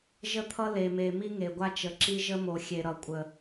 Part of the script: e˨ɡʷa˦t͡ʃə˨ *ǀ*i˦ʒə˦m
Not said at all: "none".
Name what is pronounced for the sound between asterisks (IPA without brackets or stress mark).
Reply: ǁ